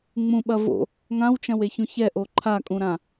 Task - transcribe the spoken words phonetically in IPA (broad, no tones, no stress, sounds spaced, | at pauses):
ŋ͡m ũ ɓ ɐ v o̰ | ŋ ã w t͡ʃ ɐ̃ w e ç ũ ç ɛ ʔ o ǃʰ a kʼ ũ ɾ ã